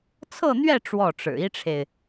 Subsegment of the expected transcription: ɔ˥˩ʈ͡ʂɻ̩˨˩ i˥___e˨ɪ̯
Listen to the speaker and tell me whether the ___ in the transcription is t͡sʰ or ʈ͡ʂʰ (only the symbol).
ʈ͡ʂʰ